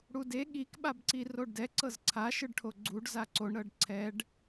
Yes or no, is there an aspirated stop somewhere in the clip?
yes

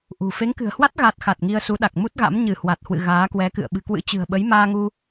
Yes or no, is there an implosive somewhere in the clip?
yes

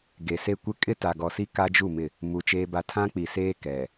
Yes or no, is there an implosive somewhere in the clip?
no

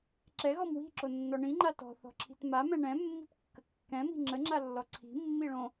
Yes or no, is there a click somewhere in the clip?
yes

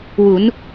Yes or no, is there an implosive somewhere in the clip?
no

